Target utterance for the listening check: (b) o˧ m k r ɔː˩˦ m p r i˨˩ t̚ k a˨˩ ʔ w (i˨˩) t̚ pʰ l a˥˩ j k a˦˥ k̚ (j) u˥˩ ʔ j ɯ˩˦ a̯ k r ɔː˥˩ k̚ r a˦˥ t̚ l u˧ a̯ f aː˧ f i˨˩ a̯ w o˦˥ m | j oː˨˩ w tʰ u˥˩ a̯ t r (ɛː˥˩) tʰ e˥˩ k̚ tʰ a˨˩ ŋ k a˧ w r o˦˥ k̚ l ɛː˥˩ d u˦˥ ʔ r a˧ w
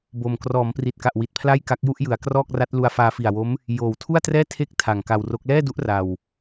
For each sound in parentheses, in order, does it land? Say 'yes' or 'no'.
yes, yes, yes, yes

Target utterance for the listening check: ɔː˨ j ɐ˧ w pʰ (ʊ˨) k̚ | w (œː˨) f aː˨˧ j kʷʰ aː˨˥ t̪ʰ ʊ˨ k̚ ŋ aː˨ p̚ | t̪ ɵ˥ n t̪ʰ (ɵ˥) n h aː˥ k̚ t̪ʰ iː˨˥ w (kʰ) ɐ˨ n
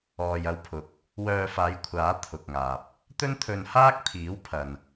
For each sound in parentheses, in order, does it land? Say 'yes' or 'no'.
yes, no, no, no

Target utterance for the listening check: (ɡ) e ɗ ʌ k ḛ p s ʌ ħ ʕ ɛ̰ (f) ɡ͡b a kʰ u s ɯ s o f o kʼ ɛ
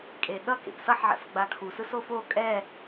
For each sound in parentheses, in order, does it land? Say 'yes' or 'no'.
no, yes

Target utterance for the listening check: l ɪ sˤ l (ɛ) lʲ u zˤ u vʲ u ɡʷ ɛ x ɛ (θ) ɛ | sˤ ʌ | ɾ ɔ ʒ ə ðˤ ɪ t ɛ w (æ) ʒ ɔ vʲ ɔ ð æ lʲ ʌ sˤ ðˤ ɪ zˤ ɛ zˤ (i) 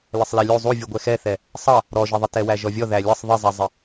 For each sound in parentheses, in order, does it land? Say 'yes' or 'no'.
yes, yes, yes, no

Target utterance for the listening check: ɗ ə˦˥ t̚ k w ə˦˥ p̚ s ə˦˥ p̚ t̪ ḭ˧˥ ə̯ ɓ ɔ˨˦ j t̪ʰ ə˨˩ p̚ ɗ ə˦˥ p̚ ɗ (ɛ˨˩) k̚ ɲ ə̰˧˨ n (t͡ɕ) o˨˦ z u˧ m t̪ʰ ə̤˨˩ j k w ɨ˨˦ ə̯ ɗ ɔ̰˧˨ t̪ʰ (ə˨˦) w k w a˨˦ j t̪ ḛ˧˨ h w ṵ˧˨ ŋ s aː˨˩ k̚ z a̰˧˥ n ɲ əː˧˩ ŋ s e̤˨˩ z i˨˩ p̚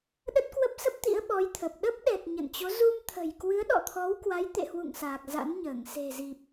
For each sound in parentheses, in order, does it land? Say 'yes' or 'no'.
yes, yes, no

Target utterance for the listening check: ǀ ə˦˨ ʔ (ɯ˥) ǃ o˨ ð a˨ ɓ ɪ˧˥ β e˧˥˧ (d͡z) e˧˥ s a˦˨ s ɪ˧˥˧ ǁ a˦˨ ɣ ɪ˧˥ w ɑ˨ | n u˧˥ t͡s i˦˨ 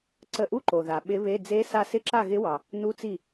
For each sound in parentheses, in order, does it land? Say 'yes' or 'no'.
no, yes

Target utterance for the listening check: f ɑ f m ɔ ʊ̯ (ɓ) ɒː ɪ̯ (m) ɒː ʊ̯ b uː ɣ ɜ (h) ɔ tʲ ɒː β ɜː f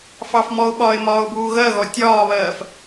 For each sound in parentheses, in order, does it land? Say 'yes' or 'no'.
yes, yes, no

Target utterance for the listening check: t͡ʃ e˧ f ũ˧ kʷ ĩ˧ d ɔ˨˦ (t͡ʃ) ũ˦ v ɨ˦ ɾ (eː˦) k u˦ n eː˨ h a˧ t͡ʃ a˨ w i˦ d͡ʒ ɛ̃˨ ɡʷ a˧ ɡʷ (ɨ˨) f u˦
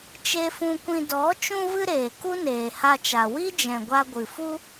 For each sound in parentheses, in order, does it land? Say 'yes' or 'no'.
yes, no, yes

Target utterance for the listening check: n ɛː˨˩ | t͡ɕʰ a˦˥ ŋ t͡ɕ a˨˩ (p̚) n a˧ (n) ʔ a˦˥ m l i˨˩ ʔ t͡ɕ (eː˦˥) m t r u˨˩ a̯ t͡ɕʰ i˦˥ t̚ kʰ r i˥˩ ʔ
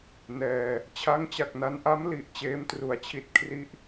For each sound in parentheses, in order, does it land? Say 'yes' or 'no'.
no, yes, yes

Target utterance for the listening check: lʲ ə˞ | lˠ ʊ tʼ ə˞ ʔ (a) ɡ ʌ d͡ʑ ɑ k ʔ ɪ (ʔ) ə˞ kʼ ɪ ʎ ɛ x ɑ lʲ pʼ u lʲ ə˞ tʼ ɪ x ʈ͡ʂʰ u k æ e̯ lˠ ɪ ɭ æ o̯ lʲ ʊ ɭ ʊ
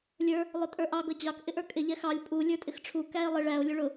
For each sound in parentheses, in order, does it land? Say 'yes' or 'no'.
no, yes

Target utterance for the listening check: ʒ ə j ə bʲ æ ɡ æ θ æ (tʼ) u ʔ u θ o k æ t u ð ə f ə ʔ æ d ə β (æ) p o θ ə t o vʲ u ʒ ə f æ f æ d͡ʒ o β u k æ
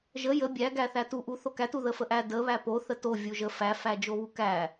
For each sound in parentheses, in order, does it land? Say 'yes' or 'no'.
no, yes

